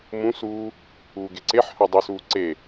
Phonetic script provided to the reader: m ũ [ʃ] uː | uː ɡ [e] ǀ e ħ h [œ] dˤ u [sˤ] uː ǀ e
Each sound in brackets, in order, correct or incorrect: incorrect: s, correct, correct, incorrect: s

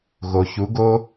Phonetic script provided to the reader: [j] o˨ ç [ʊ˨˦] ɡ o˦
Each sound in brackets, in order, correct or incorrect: incorrect: ɣ, incorrect: u˨˦

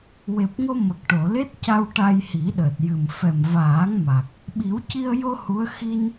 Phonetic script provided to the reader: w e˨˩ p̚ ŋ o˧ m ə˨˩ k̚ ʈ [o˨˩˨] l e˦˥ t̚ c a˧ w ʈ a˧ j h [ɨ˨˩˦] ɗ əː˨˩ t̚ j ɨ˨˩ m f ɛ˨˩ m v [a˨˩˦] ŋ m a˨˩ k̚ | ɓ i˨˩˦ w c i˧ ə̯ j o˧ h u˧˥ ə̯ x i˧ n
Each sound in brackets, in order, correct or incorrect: correct, incorrect: i˨˩˦, incorrect: aː˨˩˦

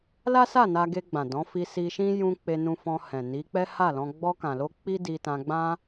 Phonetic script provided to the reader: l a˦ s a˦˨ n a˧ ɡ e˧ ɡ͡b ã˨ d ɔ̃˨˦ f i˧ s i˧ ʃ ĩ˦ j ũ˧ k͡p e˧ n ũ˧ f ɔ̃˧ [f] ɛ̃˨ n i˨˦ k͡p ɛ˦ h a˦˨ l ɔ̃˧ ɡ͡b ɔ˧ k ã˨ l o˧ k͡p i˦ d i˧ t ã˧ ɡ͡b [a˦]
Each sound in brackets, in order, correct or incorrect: incorrect: h, incorrect: ã˦

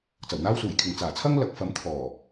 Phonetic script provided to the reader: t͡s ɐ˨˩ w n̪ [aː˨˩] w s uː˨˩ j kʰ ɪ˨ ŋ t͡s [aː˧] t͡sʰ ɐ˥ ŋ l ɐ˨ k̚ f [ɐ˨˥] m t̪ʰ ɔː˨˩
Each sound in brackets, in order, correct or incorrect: incorrect: aː˥, incorrect: aː˨˩, correct

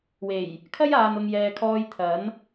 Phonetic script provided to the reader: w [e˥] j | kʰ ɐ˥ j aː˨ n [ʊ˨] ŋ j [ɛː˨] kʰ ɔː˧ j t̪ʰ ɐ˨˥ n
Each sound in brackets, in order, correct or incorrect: incorrect: e˨˩, correct, correct

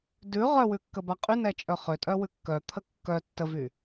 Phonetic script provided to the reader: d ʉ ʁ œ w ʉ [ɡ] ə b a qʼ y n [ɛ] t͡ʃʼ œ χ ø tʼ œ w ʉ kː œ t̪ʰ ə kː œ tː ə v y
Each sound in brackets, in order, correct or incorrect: incorrect: kː, correct

